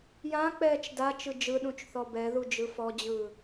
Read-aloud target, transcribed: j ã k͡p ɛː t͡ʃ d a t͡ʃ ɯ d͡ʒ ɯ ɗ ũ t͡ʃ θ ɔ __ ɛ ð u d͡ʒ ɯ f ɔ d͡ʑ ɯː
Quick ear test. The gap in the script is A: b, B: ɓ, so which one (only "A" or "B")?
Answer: A